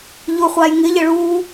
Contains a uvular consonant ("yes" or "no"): yes